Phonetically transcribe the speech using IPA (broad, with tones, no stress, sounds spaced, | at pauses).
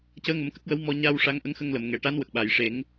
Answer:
c əː˧˥ ŋ ə˨˩˦ m k ə˦˥ k̚ w ə˧˥ w m ɔ˧ ɲ a˧ w ʂ a˧˥ ŋ ʔ ə˧˥ ŋ x ə˧ ŋ l ə˨˩˨ m ŋ ɛ˨˩˨ ʈ a˧˥ n w ə˨˩ k̚ ɓ a˨˩˨ j ʂ e˨˩˦ ŋ